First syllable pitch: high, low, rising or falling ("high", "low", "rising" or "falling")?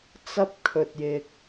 high